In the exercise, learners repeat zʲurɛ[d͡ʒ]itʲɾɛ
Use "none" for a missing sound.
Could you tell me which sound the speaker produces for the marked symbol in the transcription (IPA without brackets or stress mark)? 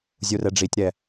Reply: ɖ͡ʐ